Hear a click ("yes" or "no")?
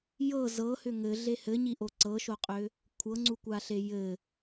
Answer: yes